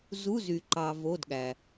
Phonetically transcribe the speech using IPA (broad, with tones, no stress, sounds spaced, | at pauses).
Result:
z u˧˥˧ z y˨ ǃ ɑ˨ v o˧˥˧ d ɠ æ˨